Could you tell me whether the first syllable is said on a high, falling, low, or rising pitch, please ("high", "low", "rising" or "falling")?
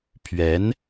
rising